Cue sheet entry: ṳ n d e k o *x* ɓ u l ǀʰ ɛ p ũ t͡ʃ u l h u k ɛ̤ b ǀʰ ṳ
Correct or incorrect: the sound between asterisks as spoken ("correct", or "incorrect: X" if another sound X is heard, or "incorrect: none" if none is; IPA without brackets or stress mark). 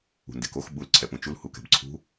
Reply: correct